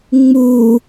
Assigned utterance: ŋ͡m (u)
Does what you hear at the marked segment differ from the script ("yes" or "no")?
no